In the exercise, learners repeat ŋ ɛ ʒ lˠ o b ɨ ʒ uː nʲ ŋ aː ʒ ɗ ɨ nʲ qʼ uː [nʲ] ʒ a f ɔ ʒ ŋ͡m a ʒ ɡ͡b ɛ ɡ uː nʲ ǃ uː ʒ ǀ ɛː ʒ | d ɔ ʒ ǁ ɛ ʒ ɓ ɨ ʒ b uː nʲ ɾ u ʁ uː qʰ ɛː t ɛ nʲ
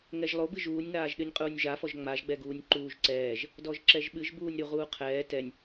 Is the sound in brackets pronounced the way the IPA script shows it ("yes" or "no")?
yes